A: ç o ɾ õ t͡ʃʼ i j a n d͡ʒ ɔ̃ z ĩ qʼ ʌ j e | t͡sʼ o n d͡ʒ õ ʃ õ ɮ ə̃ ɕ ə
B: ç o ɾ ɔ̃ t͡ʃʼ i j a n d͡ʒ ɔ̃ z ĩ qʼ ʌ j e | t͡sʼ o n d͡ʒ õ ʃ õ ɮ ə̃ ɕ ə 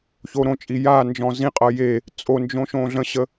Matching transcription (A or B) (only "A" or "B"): A